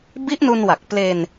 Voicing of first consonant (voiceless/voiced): voiced